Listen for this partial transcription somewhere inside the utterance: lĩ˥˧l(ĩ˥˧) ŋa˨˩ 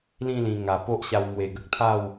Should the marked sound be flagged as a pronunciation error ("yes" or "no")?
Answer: yes